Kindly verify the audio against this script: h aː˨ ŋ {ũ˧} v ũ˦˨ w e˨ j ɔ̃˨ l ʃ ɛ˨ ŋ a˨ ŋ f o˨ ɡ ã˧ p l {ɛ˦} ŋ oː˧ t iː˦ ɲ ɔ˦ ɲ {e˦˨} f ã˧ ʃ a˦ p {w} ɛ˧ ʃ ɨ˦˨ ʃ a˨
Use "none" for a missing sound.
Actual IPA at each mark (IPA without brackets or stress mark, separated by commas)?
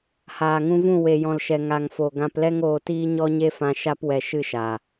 ũ˧, ɛ˦, e˦, w